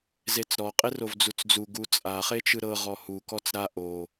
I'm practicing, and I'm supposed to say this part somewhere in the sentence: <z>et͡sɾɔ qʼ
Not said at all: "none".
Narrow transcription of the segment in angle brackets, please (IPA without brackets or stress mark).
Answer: z